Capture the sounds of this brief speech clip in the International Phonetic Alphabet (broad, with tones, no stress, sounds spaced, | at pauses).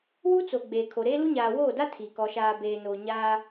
w u˦ t͡s o˨ ɡ͡b eː˨ kʰ o˨ ɾ eː˦ l u˦ ɲ aː˨ w oː˦˨ d a˦ tʰ i˨ k ɔ˨ ʃ aː˨ b eː˨ n oː˨ ɲ aː˦